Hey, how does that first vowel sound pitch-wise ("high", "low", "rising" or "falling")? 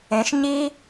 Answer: rising